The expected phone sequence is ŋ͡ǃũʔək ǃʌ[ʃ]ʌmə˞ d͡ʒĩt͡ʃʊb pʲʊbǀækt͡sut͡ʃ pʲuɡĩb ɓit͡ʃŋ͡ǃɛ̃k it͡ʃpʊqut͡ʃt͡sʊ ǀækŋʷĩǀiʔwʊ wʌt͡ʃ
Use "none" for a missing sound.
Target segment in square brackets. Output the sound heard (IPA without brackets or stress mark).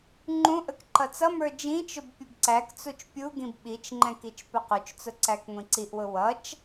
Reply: t͡s